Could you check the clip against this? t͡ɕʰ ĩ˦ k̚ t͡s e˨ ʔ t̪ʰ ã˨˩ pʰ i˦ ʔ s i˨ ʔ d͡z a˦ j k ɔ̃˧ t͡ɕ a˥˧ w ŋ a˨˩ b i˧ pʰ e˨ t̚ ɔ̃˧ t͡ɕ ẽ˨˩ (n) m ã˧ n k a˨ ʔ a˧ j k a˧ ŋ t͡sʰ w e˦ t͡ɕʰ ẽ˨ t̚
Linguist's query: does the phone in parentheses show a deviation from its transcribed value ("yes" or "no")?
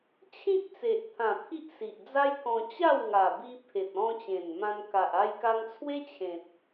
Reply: no